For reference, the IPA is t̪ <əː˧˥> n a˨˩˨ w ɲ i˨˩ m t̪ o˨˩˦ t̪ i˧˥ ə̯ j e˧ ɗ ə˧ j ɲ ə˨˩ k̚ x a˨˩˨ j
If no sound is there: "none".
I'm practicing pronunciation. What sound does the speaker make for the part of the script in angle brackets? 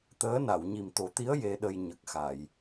əː˧˥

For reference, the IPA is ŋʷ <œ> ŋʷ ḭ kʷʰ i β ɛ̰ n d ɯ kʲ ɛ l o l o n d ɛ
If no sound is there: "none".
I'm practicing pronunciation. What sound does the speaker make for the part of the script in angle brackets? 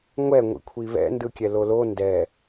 ɛ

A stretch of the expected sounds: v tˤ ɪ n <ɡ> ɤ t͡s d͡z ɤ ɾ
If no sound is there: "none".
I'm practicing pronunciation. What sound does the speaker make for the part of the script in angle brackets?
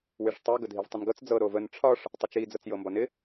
ɡ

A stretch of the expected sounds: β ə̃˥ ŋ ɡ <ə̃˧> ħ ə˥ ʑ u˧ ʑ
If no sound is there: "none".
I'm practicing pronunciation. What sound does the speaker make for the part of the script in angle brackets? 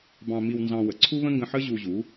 ə̃˧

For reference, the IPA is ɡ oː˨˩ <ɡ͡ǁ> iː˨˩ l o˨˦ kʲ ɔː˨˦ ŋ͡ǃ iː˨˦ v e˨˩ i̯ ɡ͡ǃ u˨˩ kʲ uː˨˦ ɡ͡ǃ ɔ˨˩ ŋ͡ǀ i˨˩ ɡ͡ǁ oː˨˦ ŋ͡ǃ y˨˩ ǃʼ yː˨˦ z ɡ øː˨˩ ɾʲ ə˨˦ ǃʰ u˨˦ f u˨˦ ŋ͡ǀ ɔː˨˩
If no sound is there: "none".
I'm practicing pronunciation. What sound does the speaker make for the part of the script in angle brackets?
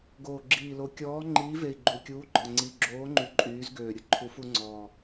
ɡ͡ǁ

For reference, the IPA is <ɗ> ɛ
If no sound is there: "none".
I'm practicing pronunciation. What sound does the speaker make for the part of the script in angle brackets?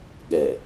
ɠ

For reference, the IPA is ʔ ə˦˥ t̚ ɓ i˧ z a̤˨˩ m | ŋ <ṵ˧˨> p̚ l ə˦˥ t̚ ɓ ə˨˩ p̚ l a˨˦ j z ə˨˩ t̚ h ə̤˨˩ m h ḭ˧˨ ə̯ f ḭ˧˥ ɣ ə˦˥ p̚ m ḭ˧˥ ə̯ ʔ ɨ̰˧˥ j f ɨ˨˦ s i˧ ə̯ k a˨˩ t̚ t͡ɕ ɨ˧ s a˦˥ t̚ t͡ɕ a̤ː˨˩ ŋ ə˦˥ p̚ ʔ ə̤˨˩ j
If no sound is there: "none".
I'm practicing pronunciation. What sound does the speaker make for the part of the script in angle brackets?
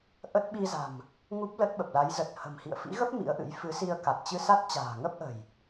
u˦˥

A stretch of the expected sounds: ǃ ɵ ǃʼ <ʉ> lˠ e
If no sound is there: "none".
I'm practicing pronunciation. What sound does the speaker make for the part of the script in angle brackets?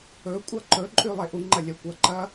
ʉ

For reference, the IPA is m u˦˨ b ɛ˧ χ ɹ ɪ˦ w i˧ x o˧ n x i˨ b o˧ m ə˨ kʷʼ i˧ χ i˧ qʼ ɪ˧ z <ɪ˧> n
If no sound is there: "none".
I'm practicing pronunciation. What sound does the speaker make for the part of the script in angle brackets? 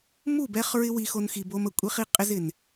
ɪ˨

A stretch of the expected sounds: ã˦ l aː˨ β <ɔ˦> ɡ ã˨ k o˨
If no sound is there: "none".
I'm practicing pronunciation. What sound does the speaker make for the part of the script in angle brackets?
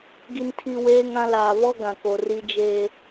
ɔ˦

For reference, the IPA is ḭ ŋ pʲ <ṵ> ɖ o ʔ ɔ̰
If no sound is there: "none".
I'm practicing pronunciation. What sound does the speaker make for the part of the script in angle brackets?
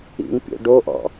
o̰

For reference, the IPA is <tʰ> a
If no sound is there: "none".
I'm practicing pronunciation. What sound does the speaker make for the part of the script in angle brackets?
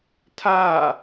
tʰ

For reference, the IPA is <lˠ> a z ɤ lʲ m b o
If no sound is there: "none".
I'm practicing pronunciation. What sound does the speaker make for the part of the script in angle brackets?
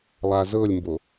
lˠ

